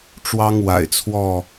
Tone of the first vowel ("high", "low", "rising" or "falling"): high